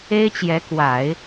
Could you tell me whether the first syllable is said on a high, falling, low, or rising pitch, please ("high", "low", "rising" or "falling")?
high